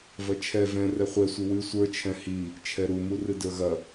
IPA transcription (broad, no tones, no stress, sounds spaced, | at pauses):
v ɐ t͡ʃʰ ɛ v ɛ̃ r ɛ χʷ ɛ sʷ ɨ w ɨ sʷ ə˞ t͡ʃʰ ɛ̃ h i | t͡ʃʰ ɛ ɾ u m u r ɨ d ə˞ ɣ ɐ